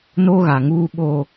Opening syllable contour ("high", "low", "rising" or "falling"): high